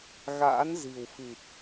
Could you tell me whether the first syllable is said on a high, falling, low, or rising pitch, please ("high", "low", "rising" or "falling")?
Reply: rising